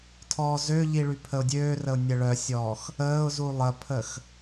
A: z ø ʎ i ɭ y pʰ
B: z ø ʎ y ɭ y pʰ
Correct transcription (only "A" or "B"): A